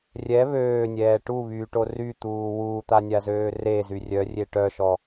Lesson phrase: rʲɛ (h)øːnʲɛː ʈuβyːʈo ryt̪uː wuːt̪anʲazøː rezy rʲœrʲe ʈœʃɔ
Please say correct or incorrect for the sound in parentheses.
incorrect